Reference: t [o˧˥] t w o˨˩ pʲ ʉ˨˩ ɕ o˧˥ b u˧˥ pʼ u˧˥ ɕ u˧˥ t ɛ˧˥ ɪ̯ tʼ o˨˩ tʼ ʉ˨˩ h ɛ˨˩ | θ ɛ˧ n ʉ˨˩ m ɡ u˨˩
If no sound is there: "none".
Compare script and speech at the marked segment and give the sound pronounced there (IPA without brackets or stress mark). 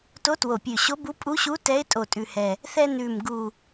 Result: o˧˥